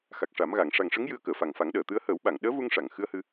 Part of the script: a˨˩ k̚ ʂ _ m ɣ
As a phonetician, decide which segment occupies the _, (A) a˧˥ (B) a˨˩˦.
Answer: B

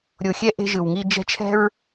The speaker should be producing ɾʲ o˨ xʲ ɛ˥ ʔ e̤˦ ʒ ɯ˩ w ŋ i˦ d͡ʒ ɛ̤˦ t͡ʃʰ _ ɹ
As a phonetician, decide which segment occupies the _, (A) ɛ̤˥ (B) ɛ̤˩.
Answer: A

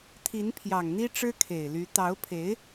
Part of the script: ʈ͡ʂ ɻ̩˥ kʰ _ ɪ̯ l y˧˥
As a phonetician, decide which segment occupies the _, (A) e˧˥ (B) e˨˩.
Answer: B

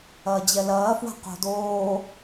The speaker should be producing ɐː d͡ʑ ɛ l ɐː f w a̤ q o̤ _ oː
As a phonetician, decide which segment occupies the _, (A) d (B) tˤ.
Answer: A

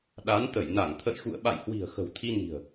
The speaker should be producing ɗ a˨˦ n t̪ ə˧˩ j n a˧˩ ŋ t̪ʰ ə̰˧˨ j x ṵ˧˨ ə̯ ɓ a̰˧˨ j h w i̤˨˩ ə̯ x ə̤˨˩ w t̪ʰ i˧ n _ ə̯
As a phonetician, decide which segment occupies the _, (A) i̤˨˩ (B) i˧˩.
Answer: A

